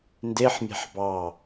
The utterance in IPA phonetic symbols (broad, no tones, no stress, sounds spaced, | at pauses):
n d e ħ mʲ a̤ ħ b ɑ